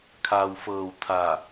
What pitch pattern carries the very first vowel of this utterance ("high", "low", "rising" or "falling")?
low